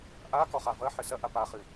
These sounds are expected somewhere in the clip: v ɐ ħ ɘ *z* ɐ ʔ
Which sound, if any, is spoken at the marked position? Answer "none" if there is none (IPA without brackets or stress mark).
s